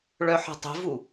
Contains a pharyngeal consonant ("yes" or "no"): yes